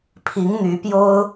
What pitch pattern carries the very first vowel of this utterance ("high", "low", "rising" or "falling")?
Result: rising